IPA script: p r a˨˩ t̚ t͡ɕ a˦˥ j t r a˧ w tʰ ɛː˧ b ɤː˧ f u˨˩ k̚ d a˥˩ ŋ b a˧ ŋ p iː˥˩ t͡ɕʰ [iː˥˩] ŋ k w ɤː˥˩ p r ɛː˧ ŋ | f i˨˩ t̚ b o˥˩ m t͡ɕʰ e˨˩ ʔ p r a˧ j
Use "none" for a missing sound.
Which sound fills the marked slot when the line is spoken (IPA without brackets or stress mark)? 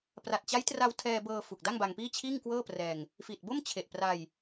iː˥˩